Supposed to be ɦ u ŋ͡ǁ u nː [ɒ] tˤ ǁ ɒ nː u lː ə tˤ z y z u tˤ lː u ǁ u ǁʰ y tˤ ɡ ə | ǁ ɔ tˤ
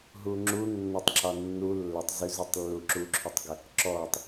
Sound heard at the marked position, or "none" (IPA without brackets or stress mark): ɒ